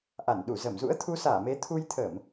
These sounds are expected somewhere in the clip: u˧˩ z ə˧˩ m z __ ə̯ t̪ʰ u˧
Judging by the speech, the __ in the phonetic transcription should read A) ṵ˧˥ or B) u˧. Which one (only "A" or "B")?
A